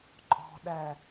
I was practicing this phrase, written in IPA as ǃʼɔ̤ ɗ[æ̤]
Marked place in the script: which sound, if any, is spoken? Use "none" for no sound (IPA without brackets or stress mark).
æ